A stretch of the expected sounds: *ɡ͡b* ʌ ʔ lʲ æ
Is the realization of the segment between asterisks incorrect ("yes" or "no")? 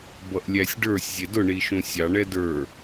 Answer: yes